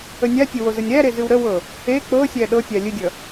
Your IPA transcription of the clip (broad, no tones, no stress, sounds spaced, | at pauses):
ə nʲ a tʲ ə w o z ə nʲ ɾ æ ɾ e z ɨ w ɾ ə w ɤ | e k͡p ɤ sʲ æ ɗ ɤ tʲ a lʲ ɨ dʲ ʌ